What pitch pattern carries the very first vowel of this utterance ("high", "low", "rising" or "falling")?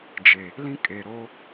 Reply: low